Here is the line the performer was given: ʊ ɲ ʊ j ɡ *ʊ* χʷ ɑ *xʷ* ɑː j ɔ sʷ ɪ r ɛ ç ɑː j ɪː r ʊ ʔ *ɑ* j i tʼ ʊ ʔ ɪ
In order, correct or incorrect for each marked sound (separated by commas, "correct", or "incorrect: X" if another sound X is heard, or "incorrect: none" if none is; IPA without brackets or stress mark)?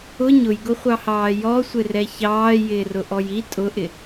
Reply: correct, incorrect: h, incorrect: ɔ